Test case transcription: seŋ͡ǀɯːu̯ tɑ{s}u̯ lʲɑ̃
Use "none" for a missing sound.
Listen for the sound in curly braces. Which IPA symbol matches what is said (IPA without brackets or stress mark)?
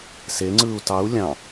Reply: none